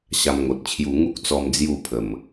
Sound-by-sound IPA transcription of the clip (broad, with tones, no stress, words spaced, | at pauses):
ɕa˧mŋo˨t̚t͡ɕʰju˧ ŋu˦k̚t͡sɔ˧m d͡zju˥˧pʰə˨˩m